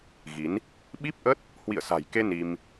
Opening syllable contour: rising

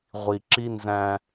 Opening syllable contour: low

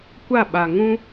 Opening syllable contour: falling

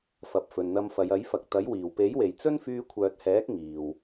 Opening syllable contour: low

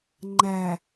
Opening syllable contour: low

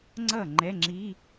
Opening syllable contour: falling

